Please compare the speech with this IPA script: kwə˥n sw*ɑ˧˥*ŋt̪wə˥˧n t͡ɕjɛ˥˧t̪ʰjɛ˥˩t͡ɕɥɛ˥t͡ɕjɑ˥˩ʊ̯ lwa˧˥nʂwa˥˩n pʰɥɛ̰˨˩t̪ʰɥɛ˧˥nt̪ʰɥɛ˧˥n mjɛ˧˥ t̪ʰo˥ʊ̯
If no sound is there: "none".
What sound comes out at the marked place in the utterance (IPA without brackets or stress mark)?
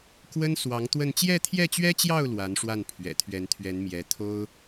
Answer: ɑ˧˥